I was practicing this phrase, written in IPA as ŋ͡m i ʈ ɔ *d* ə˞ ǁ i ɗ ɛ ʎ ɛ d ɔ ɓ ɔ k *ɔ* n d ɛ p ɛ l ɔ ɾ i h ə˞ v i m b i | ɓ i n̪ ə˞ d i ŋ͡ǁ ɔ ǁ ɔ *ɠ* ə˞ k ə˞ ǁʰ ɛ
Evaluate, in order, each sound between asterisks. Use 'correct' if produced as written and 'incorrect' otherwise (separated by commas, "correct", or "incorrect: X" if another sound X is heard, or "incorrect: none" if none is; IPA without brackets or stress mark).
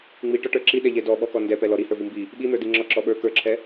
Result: incorrect: ʈ, correct, incorrect: ɓ